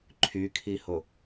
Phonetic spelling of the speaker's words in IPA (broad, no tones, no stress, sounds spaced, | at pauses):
ǃʰ y kʰ i h o